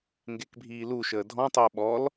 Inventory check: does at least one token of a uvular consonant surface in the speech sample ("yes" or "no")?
no